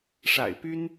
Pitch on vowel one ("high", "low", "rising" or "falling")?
low